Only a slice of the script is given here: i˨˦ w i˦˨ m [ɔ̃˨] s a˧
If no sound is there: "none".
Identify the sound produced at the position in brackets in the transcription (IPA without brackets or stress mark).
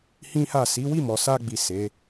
ɔ˨